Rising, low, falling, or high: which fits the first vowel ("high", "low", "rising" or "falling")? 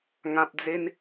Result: low